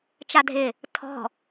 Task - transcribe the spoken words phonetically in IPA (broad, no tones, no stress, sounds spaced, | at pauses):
t͡ʃ a dʱ ɪ | tʰ ɔ̤